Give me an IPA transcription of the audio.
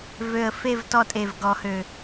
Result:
vø˨˩ə̯fe˦˨v tɔ˦˨tʼe˨˩vɡɔ˨˩˦hø˨˩

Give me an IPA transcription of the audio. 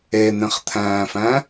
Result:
en̪ẽχt̪ʰæ̃ːfæ̃

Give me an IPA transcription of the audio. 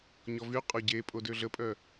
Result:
ɲɔvy qʼɔɟepʼo døɮəpʼœ

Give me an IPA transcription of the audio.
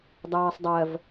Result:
dˤɜːsˤdˤɜv

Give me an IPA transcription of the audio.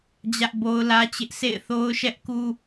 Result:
d͡ʑä˦ʔbo˦ʊ̯lä˦t͡ɕɪ˦ʔ sḛ˦˨ɪ̯θo˦ʊ̯ʃɛ˦ʔku˦

